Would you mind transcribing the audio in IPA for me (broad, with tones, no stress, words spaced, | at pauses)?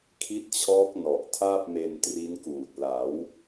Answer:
kʰi˦˥t̚t͡ɕʰɔː˦˥k̚ nɔ˨˩ʔ tʰaː˥˩p̚me˧ntri˦˥nkuː˨˩t̚ la˩˦w